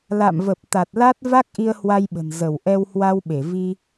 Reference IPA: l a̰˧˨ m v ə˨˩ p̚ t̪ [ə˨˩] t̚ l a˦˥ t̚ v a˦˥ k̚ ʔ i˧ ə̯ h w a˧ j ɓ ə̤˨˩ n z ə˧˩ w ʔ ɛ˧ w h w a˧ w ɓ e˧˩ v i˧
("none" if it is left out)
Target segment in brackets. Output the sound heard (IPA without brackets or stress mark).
a˨˩